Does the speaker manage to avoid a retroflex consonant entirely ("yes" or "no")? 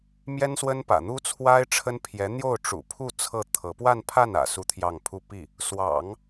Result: no